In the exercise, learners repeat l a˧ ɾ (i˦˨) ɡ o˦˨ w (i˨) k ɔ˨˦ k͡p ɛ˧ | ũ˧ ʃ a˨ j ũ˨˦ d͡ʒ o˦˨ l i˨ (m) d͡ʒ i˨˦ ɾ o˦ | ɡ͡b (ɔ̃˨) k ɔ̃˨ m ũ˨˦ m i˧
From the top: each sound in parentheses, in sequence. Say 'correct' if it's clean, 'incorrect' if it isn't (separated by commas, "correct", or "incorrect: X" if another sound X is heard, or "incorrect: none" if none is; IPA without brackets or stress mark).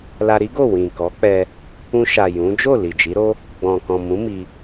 incorrect: i˦, incorrect: ĩ˨, incorrect: none, correct